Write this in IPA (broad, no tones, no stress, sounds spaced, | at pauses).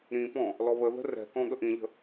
ɾ ĩ p ɔ̃ | l ɔ β ə ð ə̤ r ɛ̤ k ɔ̃ ɠ ə ʔ ĩ ʎ ə̤